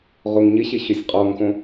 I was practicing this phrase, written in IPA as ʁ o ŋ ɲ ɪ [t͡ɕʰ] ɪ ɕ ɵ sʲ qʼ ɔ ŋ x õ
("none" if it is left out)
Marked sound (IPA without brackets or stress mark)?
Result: ɕ